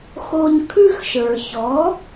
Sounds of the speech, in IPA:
x o˧ ɲ kʰ ʉ˥ x ʃ ə˞˩ ç ɔ˩˥

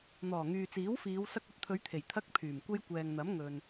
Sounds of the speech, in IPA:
n̪ ɔː˨˩ ŋ yː˨ t͡s iː˨˥ w f iː˨˧ w s ɐ˧ k̚ ɐ˧ t̚ t̪ʰ ɵ˨˧ ɥ t̪ʰ e˨˩ j t̪ʰ ɐ˥ k̚ pʰ yː˨˩ m kʷ e˥ j kʷ ɛː˨ ŋ n̪ ɐ˨˥ m ŋ ɵ˨ n

